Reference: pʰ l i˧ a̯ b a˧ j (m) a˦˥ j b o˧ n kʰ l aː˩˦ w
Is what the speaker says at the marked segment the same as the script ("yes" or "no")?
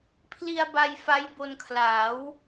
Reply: no